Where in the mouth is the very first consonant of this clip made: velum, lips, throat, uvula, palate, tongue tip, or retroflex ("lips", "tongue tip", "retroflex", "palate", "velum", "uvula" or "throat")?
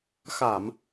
velum